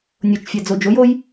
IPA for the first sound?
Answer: nʲ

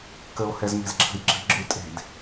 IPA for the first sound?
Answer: k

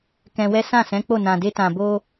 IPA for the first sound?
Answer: k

